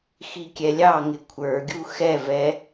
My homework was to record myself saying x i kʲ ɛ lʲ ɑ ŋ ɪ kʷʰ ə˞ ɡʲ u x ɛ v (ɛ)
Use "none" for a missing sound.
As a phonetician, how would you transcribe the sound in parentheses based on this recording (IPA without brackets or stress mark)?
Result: ɛ